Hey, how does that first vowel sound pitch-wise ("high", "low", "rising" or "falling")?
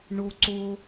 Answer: high